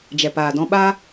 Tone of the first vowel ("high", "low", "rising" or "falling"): low